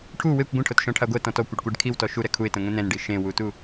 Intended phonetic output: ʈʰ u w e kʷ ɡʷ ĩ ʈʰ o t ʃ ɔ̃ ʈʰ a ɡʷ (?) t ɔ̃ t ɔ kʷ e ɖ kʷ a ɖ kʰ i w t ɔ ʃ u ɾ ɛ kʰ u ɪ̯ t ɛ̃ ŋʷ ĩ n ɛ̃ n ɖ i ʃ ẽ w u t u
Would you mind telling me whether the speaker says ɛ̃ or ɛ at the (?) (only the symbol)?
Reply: ɛ